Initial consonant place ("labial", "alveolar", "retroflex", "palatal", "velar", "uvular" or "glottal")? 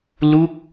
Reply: alveolar